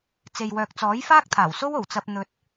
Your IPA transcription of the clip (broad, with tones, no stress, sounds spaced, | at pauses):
t͡s e˨ j w œː˨ k̚ t͡s ɔː˨˥ j f aː˥ k̚ t̪ʰ aː˨˩ w s o˥ w o˨˩ w t͡s ɐ˧ p̚ n̪ ɵ˧ t̚